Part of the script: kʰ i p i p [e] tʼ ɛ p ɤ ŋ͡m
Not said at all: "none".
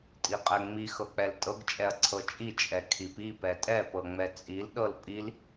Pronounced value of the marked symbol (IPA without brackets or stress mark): ɛ